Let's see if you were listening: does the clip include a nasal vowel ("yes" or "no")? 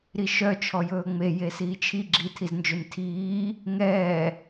no